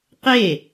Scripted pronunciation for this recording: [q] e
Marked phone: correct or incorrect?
correct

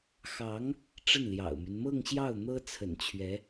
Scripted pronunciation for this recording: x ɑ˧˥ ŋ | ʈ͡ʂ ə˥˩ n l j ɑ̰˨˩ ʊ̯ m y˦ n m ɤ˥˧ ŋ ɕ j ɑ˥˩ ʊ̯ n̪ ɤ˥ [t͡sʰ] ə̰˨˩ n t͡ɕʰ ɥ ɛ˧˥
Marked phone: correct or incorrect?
correct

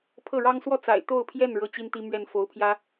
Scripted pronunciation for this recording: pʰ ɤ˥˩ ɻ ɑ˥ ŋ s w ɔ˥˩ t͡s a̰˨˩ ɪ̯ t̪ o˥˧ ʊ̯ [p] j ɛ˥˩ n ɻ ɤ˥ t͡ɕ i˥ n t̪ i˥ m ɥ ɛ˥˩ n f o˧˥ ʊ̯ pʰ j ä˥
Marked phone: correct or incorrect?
incorrect: pʰ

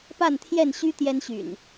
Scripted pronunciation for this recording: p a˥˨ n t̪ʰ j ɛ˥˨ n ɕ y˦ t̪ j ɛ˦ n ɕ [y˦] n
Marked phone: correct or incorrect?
incorrect: y̰˨˩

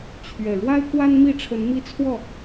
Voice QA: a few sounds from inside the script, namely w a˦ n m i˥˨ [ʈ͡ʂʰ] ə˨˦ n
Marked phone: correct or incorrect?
correct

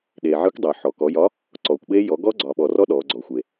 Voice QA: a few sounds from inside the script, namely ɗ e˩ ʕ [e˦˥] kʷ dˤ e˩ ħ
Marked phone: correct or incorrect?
incorrect: e˨˥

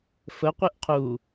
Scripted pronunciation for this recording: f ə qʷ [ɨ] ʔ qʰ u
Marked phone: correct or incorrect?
correct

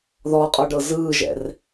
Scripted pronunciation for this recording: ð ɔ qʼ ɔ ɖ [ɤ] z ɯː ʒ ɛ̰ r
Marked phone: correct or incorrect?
correct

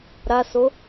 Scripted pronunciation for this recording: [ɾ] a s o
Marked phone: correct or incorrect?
correct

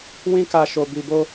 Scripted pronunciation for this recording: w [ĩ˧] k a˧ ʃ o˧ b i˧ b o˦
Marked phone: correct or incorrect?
incorrect: ĩ˦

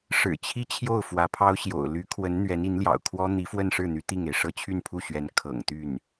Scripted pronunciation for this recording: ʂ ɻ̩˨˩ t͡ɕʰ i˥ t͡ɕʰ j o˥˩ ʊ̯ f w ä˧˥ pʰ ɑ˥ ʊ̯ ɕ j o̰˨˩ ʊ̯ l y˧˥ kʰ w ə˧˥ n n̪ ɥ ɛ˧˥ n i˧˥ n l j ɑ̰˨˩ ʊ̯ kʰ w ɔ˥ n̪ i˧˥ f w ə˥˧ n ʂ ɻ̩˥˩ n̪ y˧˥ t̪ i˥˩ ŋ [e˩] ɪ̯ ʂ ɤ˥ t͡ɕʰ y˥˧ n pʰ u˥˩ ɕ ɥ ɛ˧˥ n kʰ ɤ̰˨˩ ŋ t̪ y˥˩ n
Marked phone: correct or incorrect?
correct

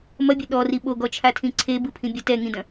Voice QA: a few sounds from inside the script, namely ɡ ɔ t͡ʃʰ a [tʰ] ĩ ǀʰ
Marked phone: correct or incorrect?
correct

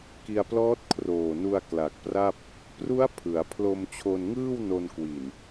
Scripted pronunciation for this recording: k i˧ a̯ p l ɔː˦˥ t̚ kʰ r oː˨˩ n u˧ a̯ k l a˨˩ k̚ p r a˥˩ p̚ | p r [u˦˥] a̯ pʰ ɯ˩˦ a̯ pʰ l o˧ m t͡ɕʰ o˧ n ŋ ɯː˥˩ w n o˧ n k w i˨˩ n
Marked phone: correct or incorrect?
correct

